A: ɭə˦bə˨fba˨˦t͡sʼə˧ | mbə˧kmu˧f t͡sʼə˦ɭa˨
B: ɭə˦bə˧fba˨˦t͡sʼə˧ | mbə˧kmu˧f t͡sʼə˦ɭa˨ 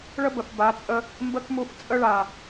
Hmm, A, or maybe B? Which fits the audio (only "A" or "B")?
A